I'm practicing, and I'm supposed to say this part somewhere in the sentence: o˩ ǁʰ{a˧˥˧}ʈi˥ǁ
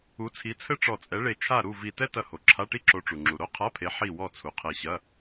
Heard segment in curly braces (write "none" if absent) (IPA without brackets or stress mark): a˧˥˧